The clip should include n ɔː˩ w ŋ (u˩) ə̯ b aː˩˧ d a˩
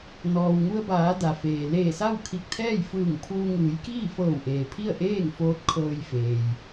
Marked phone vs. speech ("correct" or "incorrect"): incorrect